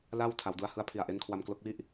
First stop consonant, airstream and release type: aspirated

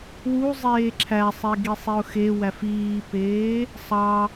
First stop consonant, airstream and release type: click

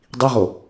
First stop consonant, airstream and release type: plain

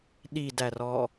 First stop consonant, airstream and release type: implosive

